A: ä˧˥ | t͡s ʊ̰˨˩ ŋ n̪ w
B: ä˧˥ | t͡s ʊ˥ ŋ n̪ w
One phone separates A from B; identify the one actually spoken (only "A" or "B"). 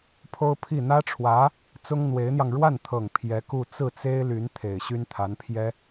B